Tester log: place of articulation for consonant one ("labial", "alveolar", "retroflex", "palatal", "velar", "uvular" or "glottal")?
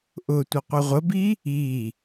glottal